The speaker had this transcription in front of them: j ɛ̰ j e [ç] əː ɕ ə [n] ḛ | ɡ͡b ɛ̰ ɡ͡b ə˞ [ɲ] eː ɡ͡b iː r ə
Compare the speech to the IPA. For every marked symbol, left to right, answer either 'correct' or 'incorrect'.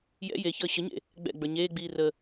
correct, incorrect: ɲ, correct

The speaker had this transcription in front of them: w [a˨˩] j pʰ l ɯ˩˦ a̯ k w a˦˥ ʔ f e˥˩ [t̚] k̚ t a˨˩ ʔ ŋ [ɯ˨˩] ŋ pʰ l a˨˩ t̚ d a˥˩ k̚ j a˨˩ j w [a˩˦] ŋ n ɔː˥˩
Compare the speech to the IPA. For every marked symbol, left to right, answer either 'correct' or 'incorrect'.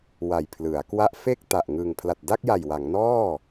correct, incorrect: none, correct, correct

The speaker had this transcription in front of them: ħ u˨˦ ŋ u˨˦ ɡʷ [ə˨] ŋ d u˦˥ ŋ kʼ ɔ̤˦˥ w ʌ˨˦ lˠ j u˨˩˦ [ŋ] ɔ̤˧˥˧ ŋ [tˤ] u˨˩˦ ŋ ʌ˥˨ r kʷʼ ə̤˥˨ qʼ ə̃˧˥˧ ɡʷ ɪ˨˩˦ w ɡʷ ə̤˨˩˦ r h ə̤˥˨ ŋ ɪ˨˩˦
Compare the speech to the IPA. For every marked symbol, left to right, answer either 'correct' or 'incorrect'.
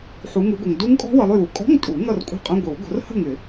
correct, incorrect: kʼ, incorrect: tʼ

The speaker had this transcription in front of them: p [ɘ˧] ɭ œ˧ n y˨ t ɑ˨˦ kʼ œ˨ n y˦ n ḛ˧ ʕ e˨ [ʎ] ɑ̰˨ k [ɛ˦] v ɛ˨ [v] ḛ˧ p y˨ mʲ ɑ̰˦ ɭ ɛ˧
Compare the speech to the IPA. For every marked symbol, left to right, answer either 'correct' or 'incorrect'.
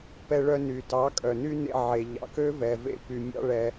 incorrect: ɛ˧, correct, incorrect: ø˦, correct

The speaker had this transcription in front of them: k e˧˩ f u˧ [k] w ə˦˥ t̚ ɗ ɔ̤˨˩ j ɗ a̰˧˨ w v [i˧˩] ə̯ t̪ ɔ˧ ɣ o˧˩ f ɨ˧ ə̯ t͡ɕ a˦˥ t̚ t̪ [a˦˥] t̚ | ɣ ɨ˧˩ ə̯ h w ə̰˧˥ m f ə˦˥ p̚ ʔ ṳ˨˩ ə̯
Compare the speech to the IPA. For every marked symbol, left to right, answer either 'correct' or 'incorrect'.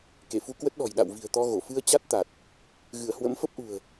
correct, incorrect: i̤˨˩, incorrect: a˨˩

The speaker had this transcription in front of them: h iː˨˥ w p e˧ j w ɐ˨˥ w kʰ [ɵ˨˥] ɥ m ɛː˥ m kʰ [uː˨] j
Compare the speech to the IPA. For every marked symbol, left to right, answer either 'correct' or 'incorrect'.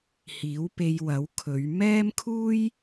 incorrect: ɵ˨˧, incorrect: uː˥

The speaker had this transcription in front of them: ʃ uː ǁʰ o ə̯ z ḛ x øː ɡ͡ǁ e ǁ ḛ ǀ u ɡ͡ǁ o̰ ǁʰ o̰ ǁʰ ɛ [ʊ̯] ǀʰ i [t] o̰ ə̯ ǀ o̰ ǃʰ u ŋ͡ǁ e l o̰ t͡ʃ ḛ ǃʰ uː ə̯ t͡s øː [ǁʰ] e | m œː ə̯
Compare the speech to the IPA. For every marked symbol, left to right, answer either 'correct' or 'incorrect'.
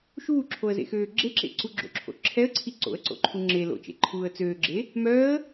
incorrect: ə̯, incorrect: ǀ, incorrect: ɡ͡ǁ

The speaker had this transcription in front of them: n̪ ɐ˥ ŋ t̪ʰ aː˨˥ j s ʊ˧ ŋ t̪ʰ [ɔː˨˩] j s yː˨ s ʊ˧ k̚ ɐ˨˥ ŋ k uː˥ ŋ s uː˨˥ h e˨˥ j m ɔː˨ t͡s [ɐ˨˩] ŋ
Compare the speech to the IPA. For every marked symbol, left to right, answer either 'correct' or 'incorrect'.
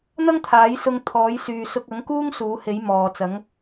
incorrect: ɔː˨˥, incorrect: ɐ˨˥

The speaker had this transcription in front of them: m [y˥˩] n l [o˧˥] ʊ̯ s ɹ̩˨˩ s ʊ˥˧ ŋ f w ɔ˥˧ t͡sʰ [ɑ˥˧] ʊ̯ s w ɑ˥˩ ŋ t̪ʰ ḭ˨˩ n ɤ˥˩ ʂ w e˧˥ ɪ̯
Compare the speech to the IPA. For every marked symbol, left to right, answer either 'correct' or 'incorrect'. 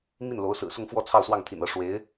incorrect: i˥˩, correct, correct

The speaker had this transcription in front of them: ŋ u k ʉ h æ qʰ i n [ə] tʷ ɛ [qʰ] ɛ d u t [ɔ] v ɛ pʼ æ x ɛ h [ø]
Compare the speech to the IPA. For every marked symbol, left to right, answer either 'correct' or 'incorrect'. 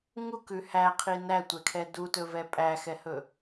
incorrect: æ, incorrect: kʰ, incorrect: ɵ, incorrect: ɵ

